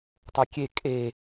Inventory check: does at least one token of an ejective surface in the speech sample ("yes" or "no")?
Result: yes